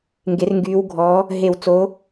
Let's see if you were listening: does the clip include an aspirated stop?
no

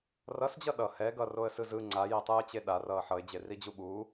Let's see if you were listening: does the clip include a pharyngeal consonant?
yes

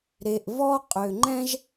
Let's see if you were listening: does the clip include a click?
yes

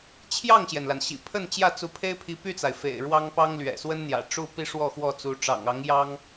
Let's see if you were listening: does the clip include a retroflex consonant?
yes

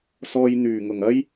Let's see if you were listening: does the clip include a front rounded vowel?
yes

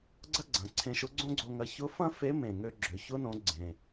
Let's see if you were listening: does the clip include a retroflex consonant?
no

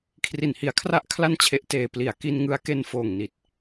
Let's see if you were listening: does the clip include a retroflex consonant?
no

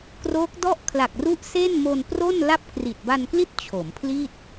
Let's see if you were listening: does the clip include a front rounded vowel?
no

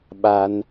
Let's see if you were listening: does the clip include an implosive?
yes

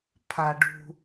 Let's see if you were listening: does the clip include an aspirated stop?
yes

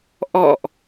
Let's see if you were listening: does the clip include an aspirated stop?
no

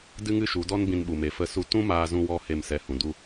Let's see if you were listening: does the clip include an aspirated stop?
no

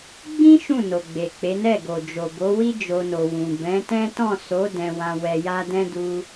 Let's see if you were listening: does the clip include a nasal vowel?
yes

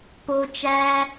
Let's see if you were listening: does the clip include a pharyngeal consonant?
no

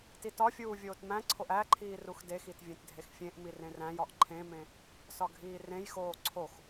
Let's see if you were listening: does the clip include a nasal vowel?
yes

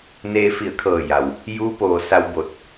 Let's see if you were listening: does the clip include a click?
no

